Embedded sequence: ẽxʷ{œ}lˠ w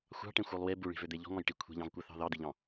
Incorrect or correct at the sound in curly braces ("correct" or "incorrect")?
correct